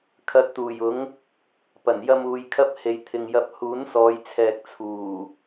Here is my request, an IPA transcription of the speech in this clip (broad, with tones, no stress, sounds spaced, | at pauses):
kʰ ɐ˧ t̚ t̪ uː˨˩ j ʊ˨˥ ŋ | p ɐ˨˩ n j ɐ˧ m uː˨˧ j kʰ ɐ˥ p̚ h e˨ j t̪ʰ ɪ˨ ŋ j ɐ˧ p̚ h uː˨˥ n s ɔː˨˧ j t͡sʰ ɛː˨ k̚ t͡sʰ uː˨˩